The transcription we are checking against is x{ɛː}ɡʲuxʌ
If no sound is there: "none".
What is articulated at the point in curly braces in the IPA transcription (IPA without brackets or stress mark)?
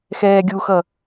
ɛː